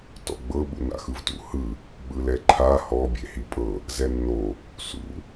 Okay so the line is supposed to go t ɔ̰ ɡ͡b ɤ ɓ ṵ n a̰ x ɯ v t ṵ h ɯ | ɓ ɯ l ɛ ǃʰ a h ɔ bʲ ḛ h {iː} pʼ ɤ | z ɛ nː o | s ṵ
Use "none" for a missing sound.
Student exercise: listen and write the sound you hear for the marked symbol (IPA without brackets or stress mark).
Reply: i